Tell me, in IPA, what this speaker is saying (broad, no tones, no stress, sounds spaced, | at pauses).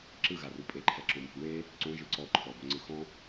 ǁ ɯ ɣ a r u pʼ e ǃʰ ɛ ǁ õ m i̤ w e | ǀ õ ʒ ɯ ǀ ɔ ǃʰ ɔ b o ŋ͡ǀ ɯ x ɔ̃